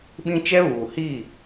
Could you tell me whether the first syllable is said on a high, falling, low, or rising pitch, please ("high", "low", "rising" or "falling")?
high